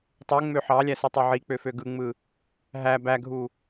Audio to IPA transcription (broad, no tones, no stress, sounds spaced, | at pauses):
tˤ u ŋ͡m ø ħ ɑ lʲ æ s ɯ tˤ ø ʕ i k͡p ø f ø ɡ ɯ ŋ͡m ɯ | ɦ æ b æ ɡʱ u